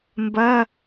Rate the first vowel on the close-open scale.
open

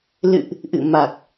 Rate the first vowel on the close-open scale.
close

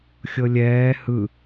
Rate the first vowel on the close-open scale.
mid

